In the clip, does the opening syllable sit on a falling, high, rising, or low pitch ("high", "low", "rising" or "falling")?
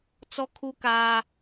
high